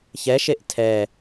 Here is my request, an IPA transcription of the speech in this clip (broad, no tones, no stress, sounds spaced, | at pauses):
ç ɛ ʃ e ʔ tʰ ɛ